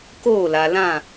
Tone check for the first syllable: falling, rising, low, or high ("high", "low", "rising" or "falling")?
falling